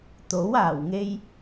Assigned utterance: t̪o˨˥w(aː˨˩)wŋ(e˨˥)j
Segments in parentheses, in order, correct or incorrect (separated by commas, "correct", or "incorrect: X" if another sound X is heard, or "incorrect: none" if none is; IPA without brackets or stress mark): correct, incorrect: e˧